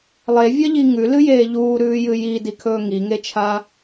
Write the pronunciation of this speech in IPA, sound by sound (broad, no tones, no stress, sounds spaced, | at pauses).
lˠ e vʲ ɐ ʎ i ŋ ʉ l ɨ j eː ʎ uː ɾ ʉː j ɨ j i d i kʰ ɵː ŋ i ŋ e t͡ʃʰ a